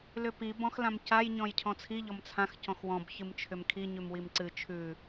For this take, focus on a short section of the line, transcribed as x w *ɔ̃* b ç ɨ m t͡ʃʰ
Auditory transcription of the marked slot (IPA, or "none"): ɔ̃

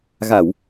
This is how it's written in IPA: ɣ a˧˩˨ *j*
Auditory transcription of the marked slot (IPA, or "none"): w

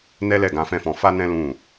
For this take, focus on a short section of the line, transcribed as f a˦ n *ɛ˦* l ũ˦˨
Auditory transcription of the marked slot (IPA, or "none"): ɛ̃˦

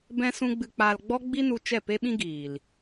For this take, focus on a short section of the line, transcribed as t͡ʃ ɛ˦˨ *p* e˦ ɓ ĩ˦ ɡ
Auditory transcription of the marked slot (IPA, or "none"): p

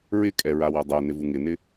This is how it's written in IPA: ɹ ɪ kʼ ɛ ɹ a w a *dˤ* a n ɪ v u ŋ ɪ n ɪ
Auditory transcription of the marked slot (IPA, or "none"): dˤ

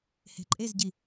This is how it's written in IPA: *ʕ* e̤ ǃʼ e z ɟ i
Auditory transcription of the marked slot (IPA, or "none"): h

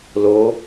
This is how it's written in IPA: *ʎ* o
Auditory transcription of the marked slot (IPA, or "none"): l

